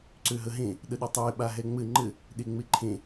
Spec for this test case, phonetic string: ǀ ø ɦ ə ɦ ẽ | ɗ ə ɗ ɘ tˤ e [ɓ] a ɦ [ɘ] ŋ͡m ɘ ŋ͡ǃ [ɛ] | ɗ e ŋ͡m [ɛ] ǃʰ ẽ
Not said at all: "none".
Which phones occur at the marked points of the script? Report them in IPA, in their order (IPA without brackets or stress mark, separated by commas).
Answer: ɓ, ɛ, ɘ, e